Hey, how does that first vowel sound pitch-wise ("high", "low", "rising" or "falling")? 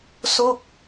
falling